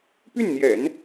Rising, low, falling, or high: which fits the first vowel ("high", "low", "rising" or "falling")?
falling